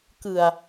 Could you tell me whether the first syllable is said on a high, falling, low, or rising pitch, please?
low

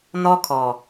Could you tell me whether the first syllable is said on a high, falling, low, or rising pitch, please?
high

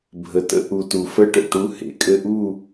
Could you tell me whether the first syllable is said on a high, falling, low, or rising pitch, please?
low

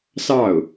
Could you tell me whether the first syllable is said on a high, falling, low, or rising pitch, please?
falling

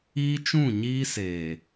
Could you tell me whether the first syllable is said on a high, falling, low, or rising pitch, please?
high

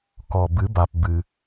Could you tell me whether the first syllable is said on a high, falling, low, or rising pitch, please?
low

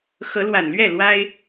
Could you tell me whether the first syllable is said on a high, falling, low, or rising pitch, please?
rising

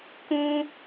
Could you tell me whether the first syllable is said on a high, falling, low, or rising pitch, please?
high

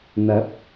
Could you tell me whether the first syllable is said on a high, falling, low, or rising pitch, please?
rising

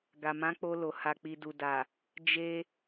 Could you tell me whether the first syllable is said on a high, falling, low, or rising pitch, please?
low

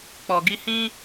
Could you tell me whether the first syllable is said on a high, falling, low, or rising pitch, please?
low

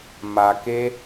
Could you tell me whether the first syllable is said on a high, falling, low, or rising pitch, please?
low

